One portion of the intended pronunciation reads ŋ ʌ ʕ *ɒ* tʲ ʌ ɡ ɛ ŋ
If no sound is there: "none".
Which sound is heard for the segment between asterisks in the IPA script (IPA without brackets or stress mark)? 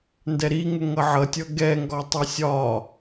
ʌ